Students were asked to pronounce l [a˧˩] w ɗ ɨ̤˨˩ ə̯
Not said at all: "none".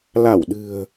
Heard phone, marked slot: a˧˩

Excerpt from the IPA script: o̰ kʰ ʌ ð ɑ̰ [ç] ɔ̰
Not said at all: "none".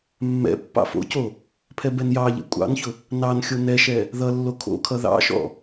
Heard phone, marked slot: ʃ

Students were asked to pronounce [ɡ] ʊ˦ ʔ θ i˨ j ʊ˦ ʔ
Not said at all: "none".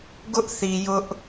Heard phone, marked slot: ɡ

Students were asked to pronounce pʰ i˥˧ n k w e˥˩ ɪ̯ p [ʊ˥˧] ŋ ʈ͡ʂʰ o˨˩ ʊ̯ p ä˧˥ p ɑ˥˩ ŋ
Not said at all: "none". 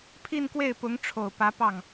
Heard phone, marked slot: ʊ˧˥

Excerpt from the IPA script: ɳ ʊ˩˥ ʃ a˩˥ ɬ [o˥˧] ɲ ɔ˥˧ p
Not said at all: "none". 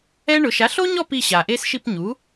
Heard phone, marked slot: o˥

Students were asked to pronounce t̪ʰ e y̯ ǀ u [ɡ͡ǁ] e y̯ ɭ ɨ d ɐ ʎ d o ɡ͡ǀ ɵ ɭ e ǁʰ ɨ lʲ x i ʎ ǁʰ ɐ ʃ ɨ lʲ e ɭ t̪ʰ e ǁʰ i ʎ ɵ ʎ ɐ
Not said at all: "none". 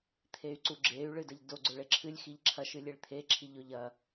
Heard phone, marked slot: ɡ͡ǁ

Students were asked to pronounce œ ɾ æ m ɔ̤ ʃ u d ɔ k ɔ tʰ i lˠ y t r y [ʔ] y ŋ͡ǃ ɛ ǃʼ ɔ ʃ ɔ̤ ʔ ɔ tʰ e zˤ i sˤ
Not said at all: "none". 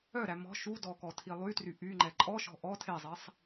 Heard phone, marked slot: ʔ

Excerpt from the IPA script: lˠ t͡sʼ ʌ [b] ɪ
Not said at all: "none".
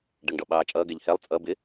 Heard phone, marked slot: b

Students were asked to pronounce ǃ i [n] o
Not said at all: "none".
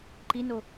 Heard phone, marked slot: n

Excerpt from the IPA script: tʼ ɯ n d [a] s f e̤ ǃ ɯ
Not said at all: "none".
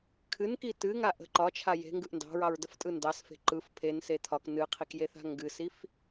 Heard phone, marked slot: ɑ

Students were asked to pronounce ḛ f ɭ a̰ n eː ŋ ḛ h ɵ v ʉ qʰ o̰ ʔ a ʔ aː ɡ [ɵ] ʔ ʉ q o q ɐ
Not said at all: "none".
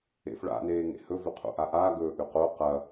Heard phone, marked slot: ɵː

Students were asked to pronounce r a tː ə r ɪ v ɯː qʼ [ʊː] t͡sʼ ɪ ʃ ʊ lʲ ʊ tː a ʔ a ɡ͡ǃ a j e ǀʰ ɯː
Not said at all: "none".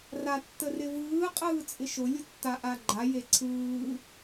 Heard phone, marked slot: ɯː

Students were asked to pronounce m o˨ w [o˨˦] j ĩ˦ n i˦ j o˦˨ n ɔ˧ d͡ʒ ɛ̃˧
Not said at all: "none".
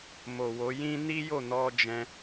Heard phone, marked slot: o˨˦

